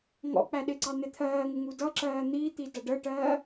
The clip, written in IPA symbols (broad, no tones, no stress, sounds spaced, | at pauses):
ŋ ɔ̰ k͡p æ ɗ ɪ ǀ ɑ n̪ ɪ t̪ʰ ɜː ŋ ɪ ŋ u d ʌ ǁ ɜː n̪ i t̪ i d ʌ ɖ ə ʈ ɜː